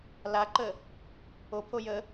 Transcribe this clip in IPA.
l a ǃ ə | o pʰ o j ə

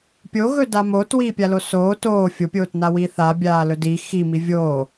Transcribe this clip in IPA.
pʲ o ɣ ɵ d a m oː t w iː pʲ a l o s oː t oː fʲ o pʲ oː t n a w iː θ aː bʲ aː l ɵ d i x i m i vʲ oː

